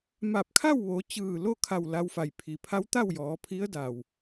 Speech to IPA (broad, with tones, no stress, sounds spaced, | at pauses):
m a˧˩ p̚ kʰ a˥˨ w ʋ o˩˧ t͡ɕ ɯː˧˩ l o˥˨ kʰ a˧˩ w l a˧ w f a˩ j pʰ i˩ pʰ a˧˥ w t̪ a˥˨ w j ɔː˩˧ pʰ i˧˥ ə̯ d a˩ w